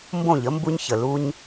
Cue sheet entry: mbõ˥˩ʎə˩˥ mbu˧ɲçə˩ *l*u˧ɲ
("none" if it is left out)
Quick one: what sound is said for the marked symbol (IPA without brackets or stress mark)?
l